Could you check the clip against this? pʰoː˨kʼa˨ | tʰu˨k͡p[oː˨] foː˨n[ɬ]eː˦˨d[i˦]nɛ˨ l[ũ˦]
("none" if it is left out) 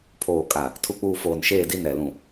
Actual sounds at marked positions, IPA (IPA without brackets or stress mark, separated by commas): uː˨, ʃ, i˦, ũ˨